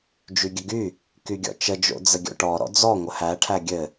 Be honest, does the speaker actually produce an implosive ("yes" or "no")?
no